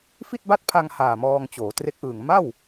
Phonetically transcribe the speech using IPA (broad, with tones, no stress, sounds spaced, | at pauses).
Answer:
f i˥˩ t̚ b a˥˩ t̚ pʰ a˧ ŋ h aː˨˩ m ɔː˧ ŋ t͡ɕ oː˩˦ t r e˦˥ k̚ ʔ ɯː˨˩ ŋ m a˥˩ w